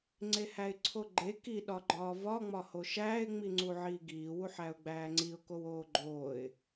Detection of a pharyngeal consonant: present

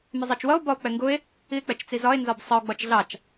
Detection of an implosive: absent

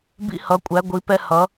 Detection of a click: absent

